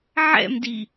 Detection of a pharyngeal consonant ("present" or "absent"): present